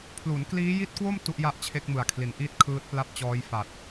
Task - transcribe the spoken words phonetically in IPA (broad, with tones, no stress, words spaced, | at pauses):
pʰlu˩˦nkliː˦˥ji˦˥t̚kwo˥˩m tu˦˥ʔja˥˩ʔt͡ɕʰe˦˥k̚ mɯ˨˩a̯kʰli˩˦nʔiː˥˩t̚ kʰɯː˦˥t̚pla˥˩p̚t͡ɕɔː˦˥jfa˨˩t̚